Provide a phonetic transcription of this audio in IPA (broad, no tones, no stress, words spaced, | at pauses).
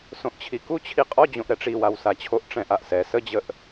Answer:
sõʔt͡ɕʰiku t͡ɕʰiqʼɔd͡ʑõʔ ɾɛʈ͡ʂi wawsat͡ɕʰoʔ ʈ͡ʂɛ̃ʔaʔsɛ səd͡ʑəʔ